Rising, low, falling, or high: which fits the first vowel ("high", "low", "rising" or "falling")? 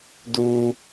high